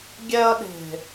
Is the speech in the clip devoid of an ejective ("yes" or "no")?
yes